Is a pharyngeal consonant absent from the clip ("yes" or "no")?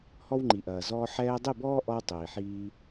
no